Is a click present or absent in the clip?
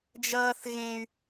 absent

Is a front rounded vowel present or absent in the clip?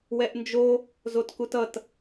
absent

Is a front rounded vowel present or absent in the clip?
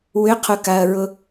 present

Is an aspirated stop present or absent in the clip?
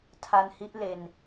present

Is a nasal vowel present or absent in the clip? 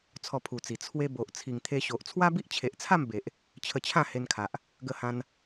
present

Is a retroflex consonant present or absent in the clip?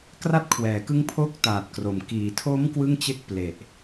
absent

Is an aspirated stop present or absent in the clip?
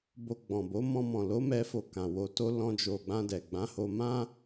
absent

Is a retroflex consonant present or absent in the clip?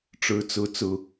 present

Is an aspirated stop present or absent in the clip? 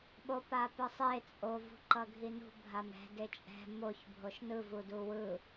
absent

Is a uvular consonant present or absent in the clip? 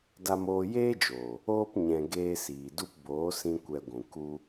absent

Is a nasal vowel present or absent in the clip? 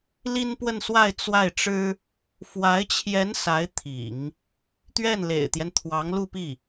absent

